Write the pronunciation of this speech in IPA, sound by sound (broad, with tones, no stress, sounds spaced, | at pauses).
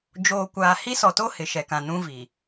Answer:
d͡ʒ oː˨ kʷ aː˨ h i˦ s ɔ˨ t o˦ h ɪ˨ ʃ ɛ˨ k ã˨ n ũ˦ v i˨